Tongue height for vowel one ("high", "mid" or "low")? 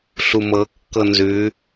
high